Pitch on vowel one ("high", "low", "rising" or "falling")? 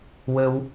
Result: high